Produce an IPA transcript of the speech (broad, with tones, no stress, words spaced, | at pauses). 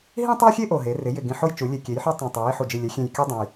ɦĩ˦tˤo˦xʲe˦ ʔo˨˩ɦe˩˧rɪ˩˧ jɪ˨˩ɡĩ˨˩ħo˦j t͡ʃu˩˧lʲe˨˩kʲe˩˧jħu˦ tˤõ˨˩tˤe˩˧j i˩˧ħu˨˩d͡ʒi˨˩ lʲɛ˩˧xʲẽ˨˩jkʲɔ˦dˤõ˨˩j